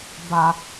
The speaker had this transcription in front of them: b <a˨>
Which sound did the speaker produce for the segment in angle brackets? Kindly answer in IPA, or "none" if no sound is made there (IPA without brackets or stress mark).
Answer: a˨